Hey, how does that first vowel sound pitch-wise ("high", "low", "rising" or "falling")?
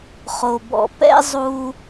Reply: low